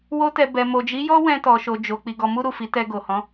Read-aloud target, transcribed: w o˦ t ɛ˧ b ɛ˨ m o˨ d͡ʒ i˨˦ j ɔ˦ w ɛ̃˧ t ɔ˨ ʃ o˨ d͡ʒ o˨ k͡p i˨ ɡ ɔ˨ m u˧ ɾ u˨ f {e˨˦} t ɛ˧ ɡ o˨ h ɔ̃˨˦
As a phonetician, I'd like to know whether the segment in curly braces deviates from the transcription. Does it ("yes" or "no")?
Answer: yes